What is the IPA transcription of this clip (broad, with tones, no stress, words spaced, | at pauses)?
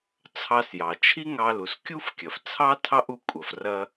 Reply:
t͡sʰɑ˧sjɑ˩t͡ʃʰi˥ ŋɑ˧lu˩s kʲu˥fkʲɐ˩ft͡sʰɑ˥ tʰɑ˥ʔu˧ kʷʼɐ˩frɐ˧